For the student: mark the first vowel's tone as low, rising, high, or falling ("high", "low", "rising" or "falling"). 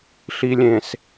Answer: low